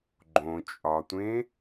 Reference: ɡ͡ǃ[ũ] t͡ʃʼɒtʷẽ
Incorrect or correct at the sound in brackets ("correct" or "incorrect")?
incorrect